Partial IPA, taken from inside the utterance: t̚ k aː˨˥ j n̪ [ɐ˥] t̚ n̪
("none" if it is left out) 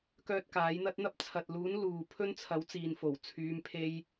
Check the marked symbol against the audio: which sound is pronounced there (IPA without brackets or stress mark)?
ɐ˥